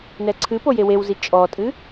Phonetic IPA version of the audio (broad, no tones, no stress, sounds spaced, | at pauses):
n ɛ ǀʰ ɨ p o j e w e w z i t͡ʃʼ ɔ tʼ ɨ